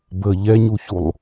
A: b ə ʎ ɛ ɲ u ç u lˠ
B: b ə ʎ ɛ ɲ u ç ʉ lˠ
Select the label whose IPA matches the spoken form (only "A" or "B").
A